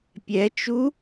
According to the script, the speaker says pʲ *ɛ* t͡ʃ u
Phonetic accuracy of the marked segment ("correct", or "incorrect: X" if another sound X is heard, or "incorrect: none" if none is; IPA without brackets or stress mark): correct